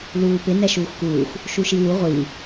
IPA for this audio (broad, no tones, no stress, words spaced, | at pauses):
luːpɪ nɛʃuːxkuːx | ʃuʃiwu ʁʷi